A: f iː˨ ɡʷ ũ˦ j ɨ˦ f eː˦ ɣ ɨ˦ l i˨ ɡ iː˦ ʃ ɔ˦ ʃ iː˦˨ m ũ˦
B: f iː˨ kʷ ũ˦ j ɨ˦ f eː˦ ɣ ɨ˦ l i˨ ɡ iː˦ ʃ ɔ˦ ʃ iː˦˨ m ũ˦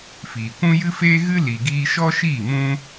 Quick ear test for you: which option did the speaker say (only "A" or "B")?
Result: B